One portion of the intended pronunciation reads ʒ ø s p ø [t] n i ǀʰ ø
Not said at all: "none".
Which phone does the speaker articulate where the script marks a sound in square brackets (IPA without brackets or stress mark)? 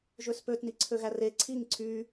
t